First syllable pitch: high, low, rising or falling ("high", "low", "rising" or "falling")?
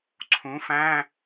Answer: rising